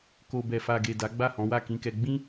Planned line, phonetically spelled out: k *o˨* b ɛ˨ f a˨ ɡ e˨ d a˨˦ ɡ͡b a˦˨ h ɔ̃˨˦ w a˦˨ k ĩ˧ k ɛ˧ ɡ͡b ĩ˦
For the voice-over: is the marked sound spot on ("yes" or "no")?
yes